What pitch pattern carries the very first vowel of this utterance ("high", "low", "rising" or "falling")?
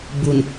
low